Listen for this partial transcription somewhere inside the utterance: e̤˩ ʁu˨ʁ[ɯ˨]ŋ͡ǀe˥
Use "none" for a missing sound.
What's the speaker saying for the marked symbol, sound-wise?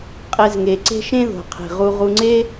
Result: u˨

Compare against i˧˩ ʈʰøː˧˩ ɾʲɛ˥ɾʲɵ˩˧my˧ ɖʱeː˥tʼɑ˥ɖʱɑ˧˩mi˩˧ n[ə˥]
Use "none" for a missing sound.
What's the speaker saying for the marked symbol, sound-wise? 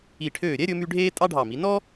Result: ɔ˥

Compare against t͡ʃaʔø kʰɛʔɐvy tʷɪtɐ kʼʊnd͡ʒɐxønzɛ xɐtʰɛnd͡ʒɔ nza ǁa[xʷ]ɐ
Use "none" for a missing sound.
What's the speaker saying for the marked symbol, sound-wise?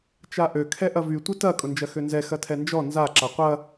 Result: qʷ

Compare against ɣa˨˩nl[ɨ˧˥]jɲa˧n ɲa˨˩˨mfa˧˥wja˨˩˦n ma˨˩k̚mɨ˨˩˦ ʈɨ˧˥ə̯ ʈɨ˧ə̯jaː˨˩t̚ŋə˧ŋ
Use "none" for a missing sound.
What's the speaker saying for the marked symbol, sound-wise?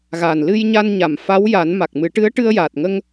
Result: ɨ˧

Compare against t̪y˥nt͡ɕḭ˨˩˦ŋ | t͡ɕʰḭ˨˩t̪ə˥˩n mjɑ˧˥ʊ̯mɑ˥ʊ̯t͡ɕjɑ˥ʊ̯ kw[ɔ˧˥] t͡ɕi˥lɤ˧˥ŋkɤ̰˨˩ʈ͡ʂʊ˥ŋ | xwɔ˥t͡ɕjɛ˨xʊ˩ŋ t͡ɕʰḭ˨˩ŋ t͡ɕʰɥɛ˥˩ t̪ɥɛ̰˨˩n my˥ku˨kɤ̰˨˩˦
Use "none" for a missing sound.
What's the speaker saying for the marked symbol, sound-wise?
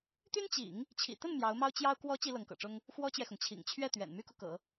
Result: ɔ˧˥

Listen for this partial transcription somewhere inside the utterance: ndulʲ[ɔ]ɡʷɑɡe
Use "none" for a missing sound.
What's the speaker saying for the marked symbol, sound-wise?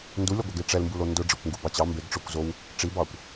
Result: ɔ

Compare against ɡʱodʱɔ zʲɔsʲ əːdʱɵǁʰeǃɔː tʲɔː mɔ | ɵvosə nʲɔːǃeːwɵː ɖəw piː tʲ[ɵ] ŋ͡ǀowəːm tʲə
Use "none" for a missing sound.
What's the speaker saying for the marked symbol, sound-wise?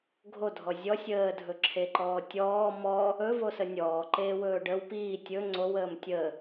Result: ɵ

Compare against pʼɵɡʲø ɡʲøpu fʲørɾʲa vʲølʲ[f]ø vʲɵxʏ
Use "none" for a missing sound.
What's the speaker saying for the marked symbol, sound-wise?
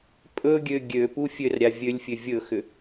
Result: fʲ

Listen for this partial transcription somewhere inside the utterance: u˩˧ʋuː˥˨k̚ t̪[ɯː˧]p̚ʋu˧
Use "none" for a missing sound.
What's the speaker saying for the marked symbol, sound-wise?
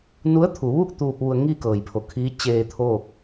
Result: uː˧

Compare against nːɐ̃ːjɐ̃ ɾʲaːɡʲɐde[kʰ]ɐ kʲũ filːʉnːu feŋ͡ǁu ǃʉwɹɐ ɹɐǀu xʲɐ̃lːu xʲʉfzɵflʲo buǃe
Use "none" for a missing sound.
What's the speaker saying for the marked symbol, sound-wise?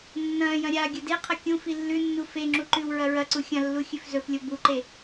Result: qʰ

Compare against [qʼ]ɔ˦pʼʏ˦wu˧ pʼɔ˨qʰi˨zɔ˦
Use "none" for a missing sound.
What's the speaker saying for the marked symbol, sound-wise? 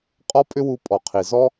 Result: qʼ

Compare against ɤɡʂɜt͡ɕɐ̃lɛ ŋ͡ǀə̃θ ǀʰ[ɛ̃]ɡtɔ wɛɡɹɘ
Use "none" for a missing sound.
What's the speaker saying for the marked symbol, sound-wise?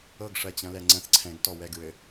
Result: ɛ̃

